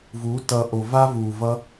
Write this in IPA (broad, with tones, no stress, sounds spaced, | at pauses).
v uː˨˦ t ʌ˨ ʔ o˨ v a˦ v uː˨ v ʌ˦